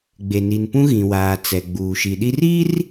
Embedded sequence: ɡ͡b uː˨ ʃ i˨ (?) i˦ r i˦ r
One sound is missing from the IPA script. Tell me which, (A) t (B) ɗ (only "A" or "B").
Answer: B